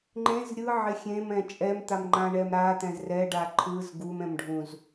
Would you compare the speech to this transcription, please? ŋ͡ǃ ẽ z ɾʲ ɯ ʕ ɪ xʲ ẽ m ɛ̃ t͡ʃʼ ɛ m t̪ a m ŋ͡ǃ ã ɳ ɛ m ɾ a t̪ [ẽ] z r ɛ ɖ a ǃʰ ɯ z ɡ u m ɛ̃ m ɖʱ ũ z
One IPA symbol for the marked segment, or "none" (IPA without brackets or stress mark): ɛ̃